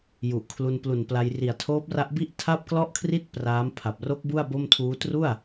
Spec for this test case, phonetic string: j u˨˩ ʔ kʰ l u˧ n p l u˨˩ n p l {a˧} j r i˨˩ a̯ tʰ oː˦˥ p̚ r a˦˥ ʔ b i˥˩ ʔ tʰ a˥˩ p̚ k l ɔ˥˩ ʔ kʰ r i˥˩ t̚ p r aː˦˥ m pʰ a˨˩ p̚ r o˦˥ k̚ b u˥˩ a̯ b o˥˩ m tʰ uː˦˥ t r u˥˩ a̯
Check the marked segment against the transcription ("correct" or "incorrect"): correct